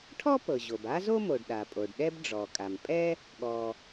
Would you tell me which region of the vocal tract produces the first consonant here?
retroflex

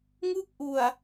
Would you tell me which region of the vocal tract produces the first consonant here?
velum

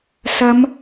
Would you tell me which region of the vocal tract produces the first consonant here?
tongue tip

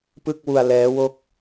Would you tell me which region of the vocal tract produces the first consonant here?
lips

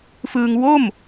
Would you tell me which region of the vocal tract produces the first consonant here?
lips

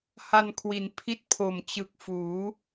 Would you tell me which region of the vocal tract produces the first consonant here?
throat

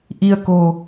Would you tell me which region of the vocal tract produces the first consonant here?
throat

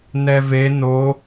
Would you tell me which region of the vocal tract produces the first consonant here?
tongue tip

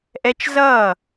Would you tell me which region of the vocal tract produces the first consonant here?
throat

